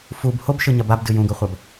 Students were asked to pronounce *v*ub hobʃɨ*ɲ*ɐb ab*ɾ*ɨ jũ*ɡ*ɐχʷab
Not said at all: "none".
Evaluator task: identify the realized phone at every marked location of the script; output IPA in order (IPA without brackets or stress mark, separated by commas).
f, ɲ, d, ɡ